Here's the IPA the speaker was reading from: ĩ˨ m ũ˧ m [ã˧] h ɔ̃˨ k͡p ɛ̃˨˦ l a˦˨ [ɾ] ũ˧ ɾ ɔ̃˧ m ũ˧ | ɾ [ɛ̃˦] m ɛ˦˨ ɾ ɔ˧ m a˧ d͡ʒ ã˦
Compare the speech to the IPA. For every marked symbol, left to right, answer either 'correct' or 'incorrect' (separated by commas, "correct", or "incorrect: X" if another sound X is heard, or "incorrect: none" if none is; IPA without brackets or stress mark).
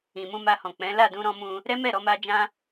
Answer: incorrect: a˧, incorrect: d, incorrect: ɛ˦